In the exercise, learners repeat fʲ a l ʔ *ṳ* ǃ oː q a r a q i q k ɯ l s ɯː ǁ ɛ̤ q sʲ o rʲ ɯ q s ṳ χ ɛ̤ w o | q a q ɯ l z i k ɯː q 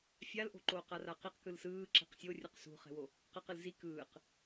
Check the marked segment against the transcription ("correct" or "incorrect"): incorrect